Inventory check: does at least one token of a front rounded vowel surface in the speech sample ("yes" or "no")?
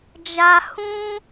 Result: no